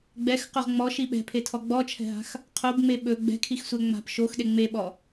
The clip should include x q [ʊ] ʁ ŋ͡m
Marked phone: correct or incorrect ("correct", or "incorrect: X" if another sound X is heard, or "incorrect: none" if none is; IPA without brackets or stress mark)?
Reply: incorrect: ɵ